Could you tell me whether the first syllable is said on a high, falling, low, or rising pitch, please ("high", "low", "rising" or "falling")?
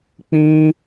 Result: high